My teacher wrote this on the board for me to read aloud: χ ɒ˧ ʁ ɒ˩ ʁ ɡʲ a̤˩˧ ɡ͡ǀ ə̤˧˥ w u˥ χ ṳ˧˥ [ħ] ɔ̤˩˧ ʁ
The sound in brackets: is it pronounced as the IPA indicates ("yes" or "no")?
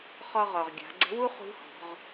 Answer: no